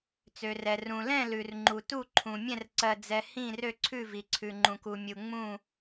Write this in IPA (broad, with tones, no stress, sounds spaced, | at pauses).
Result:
t͡s ø˩ r ɛ˩ r ũ˩ l ɛ̃˦˨ l ʉ˩ r ŋ͡ǃ u˩ t u˦˨ ǃʰ ũ˩ mʲ ɛ̃˦˨ r ǀ ɜ˩ d͡z ɛ˩ h ĩ˦˨ r ø˦˨ ǀʰ ʉ˦˨ v i˩ ǀʰ ʉ˩ ŋ͡ǃ ũ˩ k u˩ mʲ u˩ ŋ͡m ũ˦˨